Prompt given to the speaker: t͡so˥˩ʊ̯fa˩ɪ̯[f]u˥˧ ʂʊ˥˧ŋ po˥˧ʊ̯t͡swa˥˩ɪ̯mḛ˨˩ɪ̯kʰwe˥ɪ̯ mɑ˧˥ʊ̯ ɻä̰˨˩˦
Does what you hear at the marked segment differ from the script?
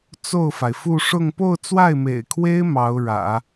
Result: no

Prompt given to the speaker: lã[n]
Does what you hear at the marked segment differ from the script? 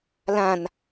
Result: no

